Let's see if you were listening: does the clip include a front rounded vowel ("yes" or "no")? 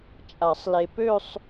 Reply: yes